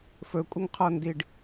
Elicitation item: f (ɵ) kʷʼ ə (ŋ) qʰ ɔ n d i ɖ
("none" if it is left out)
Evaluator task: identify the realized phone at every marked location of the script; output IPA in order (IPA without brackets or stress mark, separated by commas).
ɵ, ŋ